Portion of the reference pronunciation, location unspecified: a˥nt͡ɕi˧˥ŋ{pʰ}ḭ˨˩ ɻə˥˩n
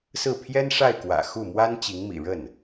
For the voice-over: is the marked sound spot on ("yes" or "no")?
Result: no